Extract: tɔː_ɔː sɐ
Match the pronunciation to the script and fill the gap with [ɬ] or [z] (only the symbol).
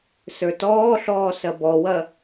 ɬ